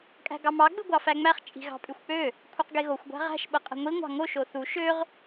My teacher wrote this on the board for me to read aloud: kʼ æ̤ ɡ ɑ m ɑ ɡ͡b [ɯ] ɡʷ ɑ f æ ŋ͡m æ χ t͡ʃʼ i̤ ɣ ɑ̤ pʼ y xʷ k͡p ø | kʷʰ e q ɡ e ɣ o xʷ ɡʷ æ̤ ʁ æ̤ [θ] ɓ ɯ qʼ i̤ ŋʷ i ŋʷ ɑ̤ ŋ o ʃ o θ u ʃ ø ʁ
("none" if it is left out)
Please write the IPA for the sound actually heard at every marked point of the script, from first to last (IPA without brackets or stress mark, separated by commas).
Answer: ɯ, ʃ